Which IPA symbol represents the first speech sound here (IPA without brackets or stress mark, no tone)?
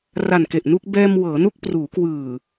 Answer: r